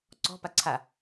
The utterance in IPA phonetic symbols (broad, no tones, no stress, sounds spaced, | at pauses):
ǀ ɔ̤ p a ǀʰ a